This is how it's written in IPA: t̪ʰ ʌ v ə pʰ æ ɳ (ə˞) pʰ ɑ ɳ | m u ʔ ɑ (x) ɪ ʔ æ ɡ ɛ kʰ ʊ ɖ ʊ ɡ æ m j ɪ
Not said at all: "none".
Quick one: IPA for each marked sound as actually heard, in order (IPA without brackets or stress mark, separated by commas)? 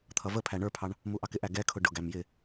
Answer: ə˞, k